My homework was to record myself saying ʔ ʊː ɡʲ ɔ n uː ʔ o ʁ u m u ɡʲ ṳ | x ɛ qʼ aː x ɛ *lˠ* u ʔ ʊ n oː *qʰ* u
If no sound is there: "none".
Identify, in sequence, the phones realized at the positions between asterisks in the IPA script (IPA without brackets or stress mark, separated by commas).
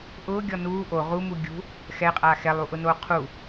lˠ, qʰ